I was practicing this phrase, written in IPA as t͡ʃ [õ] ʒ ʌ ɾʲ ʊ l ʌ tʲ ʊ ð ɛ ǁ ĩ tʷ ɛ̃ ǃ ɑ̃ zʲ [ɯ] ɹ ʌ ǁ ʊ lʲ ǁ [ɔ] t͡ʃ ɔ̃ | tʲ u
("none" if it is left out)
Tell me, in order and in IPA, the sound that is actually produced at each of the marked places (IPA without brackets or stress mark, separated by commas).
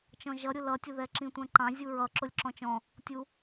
ɔ̃, u, ɔ̃